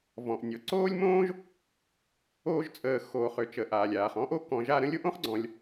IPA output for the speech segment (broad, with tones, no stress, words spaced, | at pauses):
vɔ̃˩ʔnʲɔ˩ ǀoː˥lʲmõː˥ʒ | oː˦ʒt͡sʼəː˨ xoː˨χø˨t͡ʃə˨ʔaː˩lʲ aː˩χɔ̃˥ʔo˥ kɔ̃˨ʒa˦ ɾə̃˦lʲo˥ʔõ˥χɡ͡ǀɔ̃˨lʲ